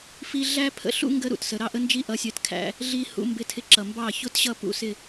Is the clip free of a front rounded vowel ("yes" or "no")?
yes